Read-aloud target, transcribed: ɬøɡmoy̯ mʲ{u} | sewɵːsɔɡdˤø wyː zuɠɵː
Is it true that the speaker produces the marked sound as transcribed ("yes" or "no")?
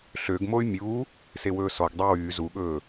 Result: yes